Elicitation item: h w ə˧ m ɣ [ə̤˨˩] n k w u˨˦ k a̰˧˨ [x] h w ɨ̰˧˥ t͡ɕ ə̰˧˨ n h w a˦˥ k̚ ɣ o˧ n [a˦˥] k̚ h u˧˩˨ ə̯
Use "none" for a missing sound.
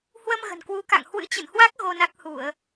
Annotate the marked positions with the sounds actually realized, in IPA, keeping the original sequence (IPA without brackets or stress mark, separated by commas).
ə̤˨˩, ŋ, a˦˥